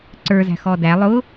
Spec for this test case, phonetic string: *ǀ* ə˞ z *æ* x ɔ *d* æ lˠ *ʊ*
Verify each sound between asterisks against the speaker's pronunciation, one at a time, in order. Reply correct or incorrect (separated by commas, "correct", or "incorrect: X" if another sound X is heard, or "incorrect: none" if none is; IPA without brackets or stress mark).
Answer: correct, incorrect: æ̤, correct, correct